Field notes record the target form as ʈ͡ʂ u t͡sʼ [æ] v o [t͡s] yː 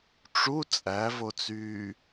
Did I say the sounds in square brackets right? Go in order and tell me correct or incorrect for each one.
correct, correct

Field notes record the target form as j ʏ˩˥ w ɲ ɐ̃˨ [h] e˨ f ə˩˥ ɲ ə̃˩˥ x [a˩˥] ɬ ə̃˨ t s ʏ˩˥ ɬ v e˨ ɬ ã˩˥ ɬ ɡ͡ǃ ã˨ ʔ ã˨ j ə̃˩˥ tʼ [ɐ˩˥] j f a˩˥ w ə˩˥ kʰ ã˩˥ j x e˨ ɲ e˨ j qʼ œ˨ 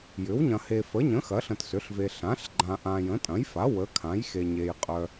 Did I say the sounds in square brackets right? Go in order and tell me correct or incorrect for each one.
correct, incorrect, incorrect

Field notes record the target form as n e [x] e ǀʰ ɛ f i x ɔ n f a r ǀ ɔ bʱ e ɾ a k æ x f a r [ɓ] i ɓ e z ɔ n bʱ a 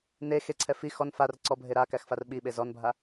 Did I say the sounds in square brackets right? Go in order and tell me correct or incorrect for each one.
correct, correct

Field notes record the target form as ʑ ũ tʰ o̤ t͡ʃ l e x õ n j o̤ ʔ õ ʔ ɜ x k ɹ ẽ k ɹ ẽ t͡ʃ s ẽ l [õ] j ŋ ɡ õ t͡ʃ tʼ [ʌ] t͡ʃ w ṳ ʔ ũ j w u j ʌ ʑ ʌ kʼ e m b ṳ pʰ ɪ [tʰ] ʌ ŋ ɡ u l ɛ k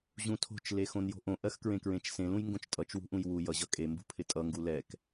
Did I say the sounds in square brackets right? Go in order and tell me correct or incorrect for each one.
incorrect, correct, incorrect

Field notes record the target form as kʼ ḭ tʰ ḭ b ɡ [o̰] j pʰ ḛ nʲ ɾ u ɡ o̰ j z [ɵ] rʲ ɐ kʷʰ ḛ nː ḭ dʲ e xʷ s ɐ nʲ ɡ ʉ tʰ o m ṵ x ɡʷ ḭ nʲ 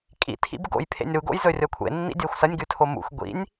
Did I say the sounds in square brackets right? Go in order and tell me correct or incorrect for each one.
correct, correct

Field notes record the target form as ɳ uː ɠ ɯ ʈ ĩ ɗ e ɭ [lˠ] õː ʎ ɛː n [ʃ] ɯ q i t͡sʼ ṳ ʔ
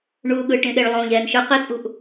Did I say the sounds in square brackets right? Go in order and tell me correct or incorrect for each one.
correct, correct

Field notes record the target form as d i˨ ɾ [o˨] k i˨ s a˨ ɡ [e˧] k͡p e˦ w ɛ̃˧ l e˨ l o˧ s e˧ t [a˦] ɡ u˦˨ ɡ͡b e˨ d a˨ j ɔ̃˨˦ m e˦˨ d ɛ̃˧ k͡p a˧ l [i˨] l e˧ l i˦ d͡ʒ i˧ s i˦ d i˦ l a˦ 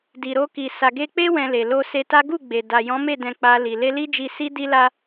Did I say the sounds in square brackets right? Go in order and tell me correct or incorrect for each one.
incorrect, correct, correct, correct

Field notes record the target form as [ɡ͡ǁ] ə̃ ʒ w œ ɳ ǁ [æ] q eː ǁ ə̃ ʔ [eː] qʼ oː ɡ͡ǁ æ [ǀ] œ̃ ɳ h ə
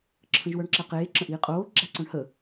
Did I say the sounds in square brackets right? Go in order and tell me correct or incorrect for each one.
incorrect, correct, incorrect, correct

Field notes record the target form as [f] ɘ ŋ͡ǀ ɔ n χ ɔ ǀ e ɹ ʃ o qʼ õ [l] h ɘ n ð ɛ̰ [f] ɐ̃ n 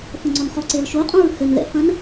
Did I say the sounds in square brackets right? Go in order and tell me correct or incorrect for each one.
correct, incorrect, correct

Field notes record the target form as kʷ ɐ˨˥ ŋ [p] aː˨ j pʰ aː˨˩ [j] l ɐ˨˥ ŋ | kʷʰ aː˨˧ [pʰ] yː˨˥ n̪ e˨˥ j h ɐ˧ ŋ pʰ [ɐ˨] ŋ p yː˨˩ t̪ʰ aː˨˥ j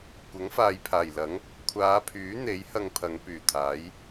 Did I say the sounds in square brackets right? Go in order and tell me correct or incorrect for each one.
incorrect, correct, correct, incorrect

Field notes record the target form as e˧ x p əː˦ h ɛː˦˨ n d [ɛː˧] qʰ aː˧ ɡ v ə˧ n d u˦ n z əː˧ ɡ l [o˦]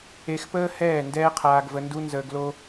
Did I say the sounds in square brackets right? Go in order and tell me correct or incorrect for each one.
incorrect, correct

